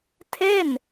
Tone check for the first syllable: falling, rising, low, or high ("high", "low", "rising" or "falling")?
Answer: falling